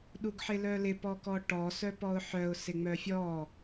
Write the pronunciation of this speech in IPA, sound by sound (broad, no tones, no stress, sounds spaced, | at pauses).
ɗ u ɡ ħ ɪ l œ l ɪ p ɔ k ɔ ʈ ɔ s œ p ɔ ʊ̯ ħ œ ʊ̯ s ɪ ŋ͡m œ fʲ ɔ